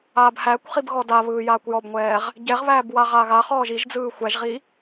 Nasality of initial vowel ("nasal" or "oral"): oral